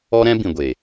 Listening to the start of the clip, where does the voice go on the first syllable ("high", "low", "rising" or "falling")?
high